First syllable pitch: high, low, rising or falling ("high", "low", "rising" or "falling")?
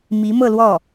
rising